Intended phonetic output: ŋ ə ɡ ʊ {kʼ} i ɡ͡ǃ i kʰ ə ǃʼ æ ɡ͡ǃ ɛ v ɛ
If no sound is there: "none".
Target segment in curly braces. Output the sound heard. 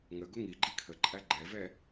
ŋ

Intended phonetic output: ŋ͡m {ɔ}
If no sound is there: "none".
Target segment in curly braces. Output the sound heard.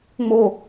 o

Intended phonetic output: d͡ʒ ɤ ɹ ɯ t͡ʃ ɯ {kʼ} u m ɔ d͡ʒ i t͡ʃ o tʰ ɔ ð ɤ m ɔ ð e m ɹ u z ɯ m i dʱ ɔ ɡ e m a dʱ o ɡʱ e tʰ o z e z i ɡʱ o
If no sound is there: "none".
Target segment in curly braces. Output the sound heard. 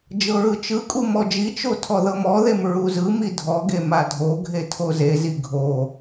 kʼ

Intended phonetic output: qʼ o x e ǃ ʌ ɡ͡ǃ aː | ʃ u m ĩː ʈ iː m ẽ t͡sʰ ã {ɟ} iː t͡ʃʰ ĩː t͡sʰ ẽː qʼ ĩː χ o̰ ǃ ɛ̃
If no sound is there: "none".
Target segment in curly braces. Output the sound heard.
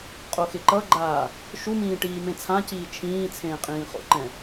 c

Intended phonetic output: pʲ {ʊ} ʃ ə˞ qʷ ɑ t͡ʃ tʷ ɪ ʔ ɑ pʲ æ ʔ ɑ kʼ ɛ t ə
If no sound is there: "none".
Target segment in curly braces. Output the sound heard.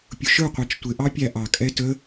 ʊ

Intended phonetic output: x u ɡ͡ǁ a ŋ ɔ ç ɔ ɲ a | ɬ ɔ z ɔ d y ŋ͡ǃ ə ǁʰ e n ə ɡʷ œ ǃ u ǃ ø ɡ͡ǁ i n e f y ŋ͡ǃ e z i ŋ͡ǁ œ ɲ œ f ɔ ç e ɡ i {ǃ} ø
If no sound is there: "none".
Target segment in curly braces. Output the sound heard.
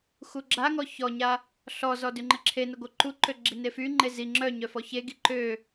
ǃ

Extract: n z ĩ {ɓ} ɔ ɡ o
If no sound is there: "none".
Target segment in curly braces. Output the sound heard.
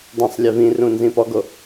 p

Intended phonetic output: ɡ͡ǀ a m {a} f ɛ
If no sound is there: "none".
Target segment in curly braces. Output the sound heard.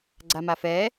a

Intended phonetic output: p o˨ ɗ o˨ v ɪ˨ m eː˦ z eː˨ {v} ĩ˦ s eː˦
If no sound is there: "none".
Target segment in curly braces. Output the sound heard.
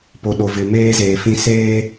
f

